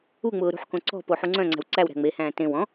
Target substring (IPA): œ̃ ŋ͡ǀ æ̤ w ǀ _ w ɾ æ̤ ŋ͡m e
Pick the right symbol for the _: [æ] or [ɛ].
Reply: æ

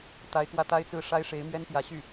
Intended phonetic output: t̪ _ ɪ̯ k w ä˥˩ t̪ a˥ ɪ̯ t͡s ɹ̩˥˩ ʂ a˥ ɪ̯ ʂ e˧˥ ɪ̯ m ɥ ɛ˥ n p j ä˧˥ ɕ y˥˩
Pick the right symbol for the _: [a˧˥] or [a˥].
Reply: a˧˥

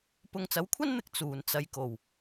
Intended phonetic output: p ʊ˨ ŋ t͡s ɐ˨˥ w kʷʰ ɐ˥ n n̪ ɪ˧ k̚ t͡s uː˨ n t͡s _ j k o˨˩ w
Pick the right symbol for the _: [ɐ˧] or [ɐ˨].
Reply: ɐ˧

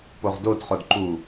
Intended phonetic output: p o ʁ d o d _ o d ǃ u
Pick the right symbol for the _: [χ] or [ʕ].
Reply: χ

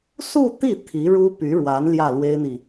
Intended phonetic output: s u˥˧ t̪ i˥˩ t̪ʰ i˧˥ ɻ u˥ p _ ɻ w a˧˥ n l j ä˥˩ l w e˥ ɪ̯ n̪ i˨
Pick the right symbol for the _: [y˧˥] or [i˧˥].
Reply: y˧˥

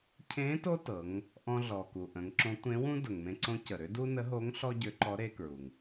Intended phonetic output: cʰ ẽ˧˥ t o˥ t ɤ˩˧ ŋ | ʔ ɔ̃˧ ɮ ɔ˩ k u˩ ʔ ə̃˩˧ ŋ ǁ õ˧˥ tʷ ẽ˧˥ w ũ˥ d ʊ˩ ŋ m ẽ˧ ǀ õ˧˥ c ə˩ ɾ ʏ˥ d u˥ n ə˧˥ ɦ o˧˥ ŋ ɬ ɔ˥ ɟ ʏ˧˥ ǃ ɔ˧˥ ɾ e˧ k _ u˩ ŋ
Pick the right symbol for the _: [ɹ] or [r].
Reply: ɹ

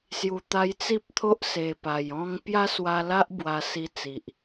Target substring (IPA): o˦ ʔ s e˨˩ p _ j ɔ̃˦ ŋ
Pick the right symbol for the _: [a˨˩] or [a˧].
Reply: a˨˩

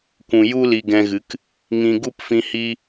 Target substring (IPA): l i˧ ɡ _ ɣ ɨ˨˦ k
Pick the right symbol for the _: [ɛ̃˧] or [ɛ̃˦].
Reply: ɛ̃˧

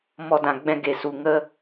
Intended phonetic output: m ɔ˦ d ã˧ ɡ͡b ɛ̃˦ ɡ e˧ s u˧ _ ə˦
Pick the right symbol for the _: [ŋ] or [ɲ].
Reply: ŋ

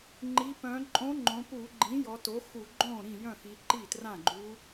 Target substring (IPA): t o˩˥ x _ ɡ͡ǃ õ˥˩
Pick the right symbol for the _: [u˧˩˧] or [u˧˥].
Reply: u˧˩˧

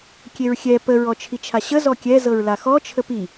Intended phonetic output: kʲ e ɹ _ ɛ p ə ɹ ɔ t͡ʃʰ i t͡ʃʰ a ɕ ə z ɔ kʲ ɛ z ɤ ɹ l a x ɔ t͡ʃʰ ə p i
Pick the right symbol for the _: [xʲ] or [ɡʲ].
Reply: xʲ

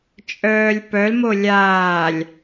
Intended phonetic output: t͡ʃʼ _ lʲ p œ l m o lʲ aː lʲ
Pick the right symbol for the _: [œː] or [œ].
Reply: œː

